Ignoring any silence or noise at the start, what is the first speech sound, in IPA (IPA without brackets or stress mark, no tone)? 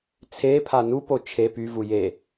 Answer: t͡sʰ